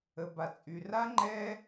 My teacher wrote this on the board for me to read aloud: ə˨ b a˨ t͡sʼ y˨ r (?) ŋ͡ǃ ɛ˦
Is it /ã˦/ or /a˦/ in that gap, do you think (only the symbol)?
a˦